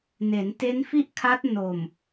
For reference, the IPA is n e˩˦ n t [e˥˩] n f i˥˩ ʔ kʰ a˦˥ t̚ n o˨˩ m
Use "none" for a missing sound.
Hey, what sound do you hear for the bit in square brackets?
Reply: e˦˥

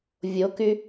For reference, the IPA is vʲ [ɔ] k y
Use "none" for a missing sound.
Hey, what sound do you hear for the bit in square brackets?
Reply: o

